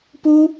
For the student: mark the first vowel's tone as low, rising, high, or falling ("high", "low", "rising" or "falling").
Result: high